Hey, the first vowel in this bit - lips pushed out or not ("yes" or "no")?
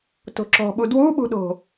yes